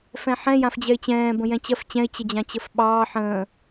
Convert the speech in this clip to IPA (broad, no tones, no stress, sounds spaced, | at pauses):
f ɛ̃ ħ ɛ̃ j ã f d͡ʑ ɛ ɪ̯ t͡ɕ ɛ̃ː b ə̃ j ɛ̃ t͡ɕ ɜ f t͡ɕ ɛ̃ ɪ̯ t͡ɕ ə d͡ʑ ã t͡ɕ ə f ɓ ɑː ħ ə̃ː